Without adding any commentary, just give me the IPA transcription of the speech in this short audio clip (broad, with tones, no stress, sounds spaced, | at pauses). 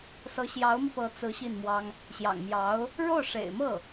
s ɤ˧˥ ɕ j ɑ˧˥ ʊ̯ m i˧ p ɤ˧˥ t͡s ɹ̩˧˥ ɕ i˥˩ n m w ɑ˥ ŋ | ɕ j ɑ̰˨˩ ŋ m j ɑ˧˥ ʊ̯ | ɻ o˥˩ ʊ̯ ʂ ḛ˨˩ ɪ̯ m ɤ˥˩